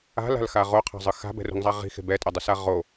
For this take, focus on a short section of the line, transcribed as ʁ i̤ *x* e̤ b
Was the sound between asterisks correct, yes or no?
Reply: yes